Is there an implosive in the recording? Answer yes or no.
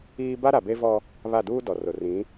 no